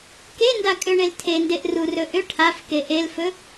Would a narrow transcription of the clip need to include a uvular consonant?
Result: no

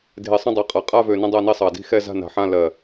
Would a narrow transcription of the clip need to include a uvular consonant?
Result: yes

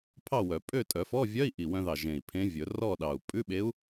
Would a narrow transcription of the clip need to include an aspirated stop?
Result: yes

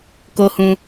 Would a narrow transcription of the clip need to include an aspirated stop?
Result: no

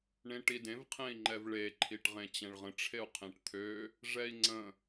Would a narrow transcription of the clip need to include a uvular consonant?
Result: yes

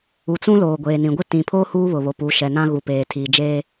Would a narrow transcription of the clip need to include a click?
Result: no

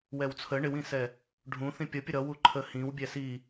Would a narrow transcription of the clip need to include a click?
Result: yes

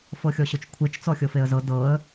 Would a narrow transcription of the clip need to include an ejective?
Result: no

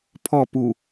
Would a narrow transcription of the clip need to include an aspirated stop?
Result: yes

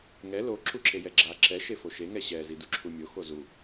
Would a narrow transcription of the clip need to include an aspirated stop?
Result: yes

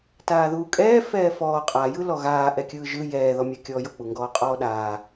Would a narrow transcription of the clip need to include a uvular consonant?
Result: yes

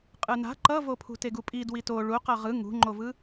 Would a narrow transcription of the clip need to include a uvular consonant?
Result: yes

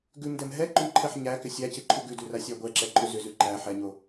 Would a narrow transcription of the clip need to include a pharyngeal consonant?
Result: yes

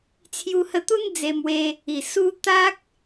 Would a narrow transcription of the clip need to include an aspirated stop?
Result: yes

